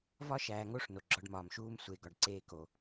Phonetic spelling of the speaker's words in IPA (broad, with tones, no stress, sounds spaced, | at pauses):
v ɒ˦ ʃ æː˨ ŋ o˦ ʂ n o˨ ɡ͡ǁ ɒ˦ ɖ m ɒː˨ m ʃ uː˦ m sʷ e˨ ɡ ɒ˨ ɖ ǀ eː˦ k o˨